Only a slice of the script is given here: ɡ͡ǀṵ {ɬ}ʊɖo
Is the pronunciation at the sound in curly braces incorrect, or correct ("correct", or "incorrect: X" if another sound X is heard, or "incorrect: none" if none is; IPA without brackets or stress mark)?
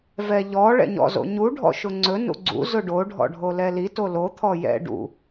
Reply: incorrect: z